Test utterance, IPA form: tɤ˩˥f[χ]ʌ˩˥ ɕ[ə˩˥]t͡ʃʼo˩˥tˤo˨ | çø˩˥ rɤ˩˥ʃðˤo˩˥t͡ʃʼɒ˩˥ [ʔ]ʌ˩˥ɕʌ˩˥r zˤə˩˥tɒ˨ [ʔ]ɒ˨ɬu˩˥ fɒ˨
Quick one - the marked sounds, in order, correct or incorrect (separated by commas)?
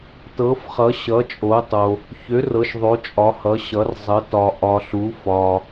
correct, incorrect, incorrect, correct